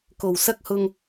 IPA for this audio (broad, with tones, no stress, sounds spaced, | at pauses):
k o˨˩ w s ɐ˥ k̚ h ʊ˧ ŋ